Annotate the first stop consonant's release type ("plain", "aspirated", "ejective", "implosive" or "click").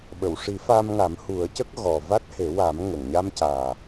implosive